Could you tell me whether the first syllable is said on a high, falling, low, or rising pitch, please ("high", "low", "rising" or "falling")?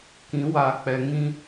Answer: rising